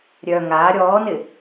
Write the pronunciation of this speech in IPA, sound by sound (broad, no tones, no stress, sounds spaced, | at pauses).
ɾʲ œ ŋ aː ɾʲ ɔː n ɪ